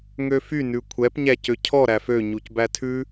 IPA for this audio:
ŋ ø f y n ʉ kʷʰ ɛ p ɲ æ c ø cʰ ɔ ɾ æ f ø ɲ u c b æ tʰ ʉ

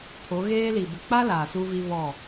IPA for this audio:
pʰ o˨˦ ɣ eː˦ l i˨ b ɪ˨ k͡p a˦ l aː˨ s u˦ v i˦ β ɔ˦˨

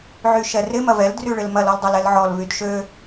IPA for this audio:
ʕ y ʃ ɛ r ɪ m ɐ v ɛ l d r y ɭ ɪ l m ɐ l ɔ l dˤ o l ɛ l ʕ ɔ l v y d ʃ ø

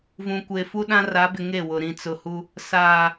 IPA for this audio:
v ũ˨ kʷ e˨ f u˦ ɗ ã˦ r a˨˦ b ɪ˨ ŋ e˦˨ w ʊ˨ ɾ ĩ˨ t͡s ʊ˨ h u˦ | s aː˨

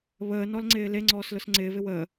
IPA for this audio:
β əː n ɔ l ŋ͡ǀ ɪː l e ŋ͡ǀ ɔː s l ʊ s ŋ͡ǀ ɪː v ɪ w əː

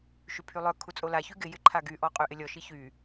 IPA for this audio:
ʃ y pʰ y lˠ œ kʰ u t͡sʼ o l a ç y ɡ ɪ j ɪ ǃʰ a ɡ y ʔ ɔ qʼ y ʔ ɪ lʲ ɔ ʃ i ç y

